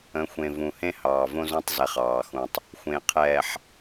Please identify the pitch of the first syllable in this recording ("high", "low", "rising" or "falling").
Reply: rising